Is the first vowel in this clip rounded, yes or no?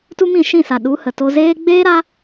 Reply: yes